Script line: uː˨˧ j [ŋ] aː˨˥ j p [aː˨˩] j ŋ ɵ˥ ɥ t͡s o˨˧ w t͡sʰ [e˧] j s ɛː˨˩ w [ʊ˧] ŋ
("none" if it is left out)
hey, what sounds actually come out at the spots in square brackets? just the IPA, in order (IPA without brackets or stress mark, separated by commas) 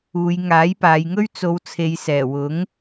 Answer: ŋ, aː˨˧, e˨, ʊ˨˥